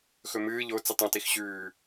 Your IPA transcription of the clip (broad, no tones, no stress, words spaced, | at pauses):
xɵmɨː ʎo t͡sitˤõtix ɕʉː